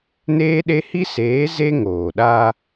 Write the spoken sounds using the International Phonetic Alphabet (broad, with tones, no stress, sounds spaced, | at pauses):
n eː˦ ɗ e˦ h i˦ s eː˨˦ z e˦ ŋ oː˨ ɗ aː˦